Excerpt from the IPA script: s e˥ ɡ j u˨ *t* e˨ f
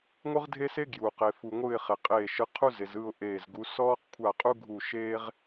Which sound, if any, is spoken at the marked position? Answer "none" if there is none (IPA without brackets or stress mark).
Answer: q